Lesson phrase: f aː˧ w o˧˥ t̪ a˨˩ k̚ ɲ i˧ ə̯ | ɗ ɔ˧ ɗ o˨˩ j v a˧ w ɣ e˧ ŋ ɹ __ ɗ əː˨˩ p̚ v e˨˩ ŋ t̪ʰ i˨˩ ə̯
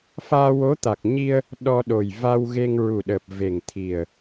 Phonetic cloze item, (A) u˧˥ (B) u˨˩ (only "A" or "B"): B